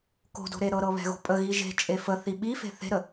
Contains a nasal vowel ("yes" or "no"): no